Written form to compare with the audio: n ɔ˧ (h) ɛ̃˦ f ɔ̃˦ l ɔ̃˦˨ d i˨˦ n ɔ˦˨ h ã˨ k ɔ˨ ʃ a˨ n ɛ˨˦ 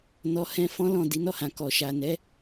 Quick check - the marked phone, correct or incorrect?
correct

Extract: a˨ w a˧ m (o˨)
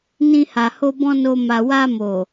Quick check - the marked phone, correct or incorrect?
correct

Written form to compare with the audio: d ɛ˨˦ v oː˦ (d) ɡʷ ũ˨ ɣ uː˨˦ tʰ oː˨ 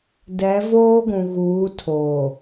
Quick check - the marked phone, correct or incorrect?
incorrect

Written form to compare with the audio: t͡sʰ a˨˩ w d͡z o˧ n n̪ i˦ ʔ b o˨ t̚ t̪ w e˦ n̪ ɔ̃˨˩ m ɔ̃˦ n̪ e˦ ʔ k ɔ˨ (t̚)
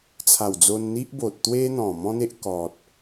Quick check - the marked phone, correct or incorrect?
correct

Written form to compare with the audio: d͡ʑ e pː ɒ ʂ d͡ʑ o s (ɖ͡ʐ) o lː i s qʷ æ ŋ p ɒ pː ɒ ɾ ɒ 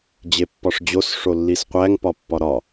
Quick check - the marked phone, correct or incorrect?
incorrect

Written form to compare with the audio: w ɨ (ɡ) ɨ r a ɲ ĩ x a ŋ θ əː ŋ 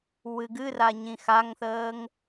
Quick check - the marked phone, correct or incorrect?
correct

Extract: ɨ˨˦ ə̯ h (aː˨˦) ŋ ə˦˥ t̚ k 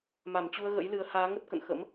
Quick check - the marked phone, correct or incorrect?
correct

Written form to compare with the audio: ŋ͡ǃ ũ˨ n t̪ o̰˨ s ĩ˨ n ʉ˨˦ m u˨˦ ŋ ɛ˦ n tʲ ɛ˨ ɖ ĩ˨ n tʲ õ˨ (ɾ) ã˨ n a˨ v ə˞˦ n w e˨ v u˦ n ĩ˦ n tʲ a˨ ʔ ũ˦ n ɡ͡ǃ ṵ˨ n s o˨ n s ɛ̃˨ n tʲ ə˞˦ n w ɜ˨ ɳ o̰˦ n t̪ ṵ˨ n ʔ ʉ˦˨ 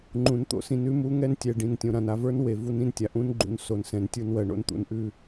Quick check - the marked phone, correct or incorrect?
correct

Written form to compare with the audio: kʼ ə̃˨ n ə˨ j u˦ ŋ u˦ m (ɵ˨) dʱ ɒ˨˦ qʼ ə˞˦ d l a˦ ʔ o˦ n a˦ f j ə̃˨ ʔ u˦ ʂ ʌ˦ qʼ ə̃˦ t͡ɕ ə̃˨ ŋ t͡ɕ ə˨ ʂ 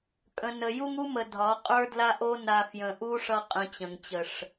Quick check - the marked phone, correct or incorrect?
incorrect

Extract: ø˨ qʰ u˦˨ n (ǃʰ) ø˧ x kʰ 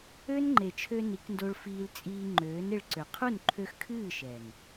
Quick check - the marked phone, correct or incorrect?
correct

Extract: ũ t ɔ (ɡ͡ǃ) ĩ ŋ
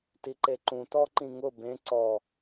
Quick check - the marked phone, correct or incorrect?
incorrect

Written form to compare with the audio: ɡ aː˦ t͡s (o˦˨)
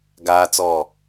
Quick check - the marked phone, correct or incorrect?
incorrect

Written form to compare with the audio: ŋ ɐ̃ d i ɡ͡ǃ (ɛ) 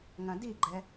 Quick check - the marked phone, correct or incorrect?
correct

